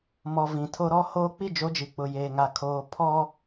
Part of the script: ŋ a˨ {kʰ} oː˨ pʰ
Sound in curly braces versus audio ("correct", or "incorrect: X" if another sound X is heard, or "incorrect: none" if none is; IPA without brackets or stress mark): correct